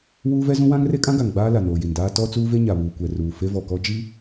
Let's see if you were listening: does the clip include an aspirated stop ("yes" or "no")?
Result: no